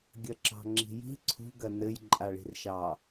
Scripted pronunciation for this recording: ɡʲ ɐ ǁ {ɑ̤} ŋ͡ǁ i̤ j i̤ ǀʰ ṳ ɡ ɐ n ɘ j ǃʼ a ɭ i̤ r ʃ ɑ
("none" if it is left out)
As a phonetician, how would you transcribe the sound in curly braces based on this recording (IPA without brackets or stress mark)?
ɑ̤